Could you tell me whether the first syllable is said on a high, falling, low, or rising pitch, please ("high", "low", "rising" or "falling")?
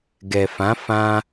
low